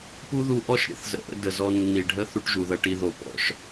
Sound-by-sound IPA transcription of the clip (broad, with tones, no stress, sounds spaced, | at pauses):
p u˦ ð u˧ ʔ ɔ˦ ʃ ɾʲ ə̰˦ θ z ə̰˨ ʔ ə̰˧ d ə˨ z ɔ˧ nː i˨ ɖʱ ə˦ θ u˦ ʈ ʒ u˨ ð ɐ˧ ʈ i˧ ð o˨ p ɔ̰˨˦ ʃ